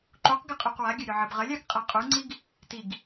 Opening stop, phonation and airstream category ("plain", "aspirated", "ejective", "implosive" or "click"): click